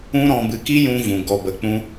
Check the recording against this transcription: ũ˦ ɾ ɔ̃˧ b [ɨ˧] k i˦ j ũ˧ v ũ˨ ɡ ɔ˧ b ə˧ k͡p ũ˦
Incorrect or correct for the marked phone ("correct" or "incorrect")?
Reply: correct